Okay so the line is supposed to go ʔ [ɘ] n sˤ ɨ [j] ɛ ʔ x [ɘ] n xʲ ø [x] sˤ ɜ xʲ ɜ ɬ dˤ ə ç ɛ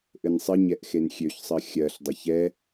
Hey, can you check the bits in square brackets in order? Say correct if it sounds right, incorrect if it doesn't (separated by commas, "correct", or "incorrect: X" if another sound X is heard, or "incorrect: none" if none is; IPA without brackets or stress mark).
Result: correct, incorrect: ɲ, incorrect: e, incorrect: ç